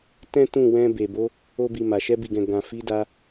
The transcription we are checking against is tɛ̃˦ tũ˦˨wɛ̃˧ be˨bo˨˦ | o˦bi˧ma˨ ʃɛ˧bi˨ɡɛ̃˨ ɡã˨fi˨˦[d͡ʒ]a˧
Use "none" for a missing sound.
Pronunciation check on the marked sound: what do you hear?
d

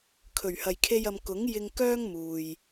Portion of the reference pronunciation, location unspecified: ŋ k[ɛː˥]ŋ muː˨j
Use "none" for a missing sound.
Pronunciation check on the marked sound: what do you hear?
œː˥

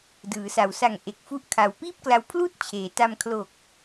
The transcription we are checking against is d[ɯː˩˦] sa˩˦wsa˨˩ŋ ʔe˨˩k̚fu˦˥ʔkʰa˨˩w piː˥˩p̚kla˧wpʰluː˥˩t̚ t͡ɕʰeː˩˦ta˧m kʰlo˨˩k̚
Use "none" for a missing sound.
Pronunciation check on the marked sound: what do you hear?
ɯː˩˦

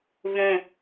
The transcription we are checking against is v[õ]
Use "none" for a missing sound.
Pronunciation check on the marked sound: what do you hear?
õ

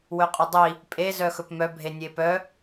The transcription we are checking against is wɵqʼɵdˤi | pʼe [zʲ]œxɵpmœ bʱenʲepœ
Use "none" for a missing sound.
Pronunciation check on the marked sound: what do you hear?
z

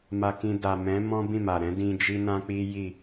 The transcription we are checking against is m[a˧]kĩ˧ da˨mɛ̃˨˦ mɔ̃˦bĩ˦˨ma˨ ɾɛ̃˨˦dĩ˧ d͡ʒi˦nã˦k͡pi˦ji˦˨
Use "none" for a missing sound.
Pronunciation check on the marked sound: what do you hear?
a˧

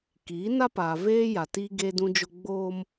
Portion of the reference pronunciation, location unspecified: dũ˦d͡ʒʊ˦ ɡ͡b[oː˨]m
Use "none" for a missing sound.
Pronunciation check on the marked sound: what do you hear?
oː˦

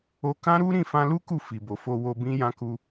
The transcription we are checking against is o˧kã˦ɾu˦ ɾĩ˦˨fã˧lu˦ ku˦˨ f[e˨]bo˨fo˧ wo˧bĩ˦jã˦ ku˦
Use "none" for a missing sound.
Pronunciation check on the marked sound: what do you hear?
i˨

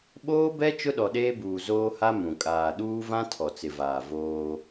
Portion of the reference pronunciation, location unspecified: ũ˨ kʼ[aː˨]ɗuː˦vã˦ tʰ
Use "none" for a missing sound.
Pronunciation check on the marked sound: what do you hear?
aː˨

